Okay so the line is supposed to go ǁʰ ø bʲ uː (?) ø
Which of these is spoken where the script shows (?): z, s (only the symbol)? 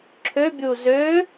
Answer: z